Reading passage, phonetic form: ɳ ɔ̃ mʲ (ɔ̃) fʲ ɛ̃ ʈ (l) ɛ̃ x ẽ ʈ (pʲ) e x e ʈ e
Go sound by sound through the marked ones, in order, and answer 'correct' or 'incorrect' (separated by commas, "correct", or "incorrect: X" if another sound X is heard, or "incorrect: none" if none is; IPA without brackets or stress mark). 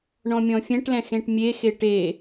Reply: correct, correct, incorrect: mʲ